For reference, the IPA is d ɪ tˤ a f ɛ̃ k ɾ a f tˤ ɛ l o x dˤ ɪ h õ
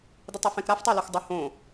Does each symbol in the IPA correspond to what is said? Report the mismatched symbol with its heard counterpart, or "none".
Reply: none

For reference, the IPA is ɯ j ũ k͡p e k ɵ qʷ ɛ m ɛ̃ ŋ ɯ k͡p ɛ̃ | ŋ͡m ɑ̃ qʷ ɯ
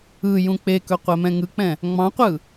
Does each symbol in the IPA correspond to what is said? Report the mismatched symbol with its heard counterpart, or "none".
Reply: none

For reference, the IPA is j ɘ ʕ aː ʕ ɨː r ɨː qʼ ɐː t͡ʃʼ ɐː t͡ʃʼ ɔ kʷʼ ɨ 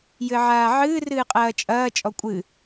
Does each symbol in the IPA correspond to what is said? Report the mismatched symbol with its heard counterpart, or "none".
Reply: none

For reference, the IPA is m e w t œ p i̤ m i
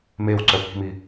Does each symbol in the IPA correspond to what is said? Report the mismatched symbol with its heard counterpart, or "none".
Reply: t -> ǀ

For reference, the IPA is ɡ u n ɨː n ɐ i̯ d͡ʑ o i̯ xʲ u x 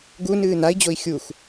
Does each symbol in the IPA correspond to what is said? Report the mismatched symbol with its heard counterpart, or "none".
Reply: ɐ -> a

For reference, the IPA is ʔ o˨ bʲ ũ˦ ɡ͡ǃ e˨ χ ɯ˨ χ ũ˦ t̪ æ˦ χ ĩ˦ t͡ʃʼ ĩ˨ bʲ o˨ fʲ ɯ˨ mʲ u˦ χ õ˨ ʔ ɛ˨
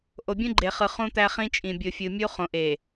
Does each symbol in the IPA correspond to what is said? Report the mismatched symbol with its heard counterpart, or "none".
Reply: ɛ˨ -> e˨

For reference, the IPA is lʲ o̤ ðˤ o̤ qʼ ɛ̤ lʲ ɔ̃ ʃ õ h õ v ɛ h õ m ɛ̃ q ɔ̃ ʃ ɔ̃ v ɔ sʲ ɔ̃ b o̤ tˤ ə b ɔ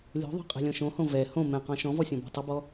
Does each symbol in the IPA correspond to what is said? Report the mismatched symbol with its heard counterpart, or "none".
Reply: none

